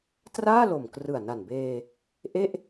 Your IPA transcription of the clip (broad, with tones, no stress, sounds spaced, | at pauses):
t r aː˥˩ l o˨˩ m k r ɯ˨˩ a̯ n a˨˩ n b eː˧ | ʔ e˥˩ ʔ